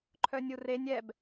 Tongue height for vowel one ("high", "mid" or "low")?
mid